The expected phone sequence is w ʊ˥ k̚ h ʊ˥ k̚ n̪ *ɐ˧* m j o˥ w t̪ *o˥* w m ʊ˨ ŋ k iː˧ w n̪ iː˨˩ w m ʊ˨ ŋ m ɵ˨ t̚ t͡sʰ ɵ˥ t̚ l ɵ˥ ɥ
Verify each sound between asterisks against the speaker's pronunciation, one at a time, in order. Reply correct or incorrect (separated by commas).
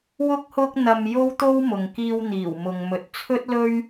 correct, correct